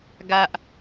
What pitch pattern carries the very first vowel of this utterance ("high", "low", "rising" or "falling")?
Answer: high